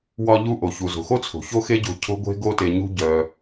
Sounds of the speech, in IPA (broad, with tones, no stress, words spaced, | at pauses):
wɒ˦ʎu˦ʔo˨ çu˨zo̤˨xo˦t͡sʰo̤˨ ço˦xe˦ɟo̤˧ cʰo̤˦ɡʷe̤˦ ɡo˦te˧ɲṳ˦ ɟœ˧